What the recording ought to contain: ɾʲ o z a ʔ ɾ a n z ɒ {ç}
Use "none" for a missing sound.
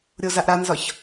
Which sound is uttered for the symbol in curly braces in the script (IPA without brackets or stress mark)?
ç